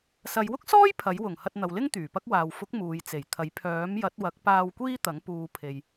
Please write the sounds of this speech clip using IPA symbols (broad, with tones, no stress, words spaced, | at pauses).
sɐ˨˧jwʊ˥k̚sɔː˥j pʰɐ˨˥jwʊ˨˩ŋ hɐ˧t̚n̪ɐ˨wlɪ˥ŋ t̪yː˨˩pɐ˥k̚waː˨w fʊ˨˥k̚ muː˨jt͡se˨˩jt̪ʰɐ˨˥j pʰœː˨˥mjɐ˨˥t̚ wɐ˨˥k̚paː˧w kʷiː˥t̪ɐ˨˥ŋ puː˨˧pʰe˨j